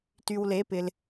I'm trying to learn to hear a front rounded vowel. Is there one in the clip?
yes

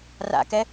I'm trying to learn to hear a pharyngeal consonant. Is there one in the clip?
no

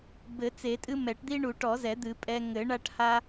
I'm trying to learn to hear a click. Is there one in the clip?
no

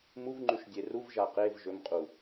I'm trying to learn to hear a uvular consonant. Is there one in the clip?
yes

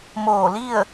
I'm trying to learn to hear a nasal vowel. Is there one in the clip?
no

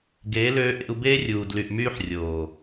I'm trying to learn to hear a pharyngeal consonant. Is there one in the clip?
yes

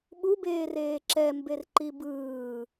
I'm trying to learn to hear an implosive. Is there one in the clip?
yes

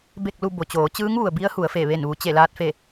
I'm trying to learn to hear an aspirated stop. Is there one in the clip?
no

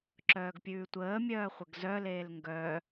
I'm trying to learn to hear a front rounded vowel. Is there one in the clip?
yes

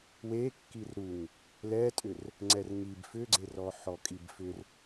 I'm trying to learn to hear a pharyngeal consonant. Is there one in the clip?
yes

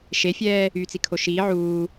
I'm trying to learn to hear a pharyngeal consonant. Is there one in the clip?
yes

